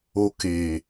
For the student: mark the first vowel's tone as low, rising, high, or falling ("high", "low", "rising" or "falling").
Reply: low